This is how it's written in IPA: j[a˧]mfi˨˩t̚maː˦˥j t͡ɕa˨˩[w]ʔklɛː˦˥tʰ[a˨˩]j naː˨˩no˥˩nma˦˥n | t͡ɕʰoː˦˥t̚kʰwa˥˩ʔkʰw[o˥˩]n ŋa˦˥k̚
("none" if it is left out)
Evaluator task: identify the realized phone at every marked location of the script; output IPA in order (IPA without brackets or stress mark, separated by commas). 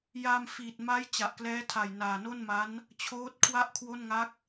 a˧, none, a˨˩, o˥˩